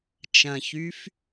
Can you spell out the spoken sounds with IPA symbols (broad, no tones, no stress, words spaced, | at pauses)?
t͡ʃɐ̃çyf